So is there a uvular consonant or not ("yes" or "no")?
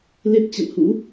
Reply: no